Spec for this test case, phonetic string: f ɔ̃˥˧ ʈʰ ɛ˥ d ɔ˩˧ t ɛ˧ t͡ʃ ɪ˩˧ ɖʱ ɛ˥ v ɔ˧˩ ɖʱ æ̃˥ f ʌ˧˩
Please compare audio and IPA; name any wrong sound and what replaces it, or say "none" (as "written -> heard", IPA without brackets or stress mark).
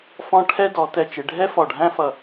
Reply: v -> f